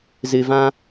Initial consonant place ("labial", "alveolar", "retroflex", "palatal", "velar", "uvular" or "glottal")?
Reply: alveolar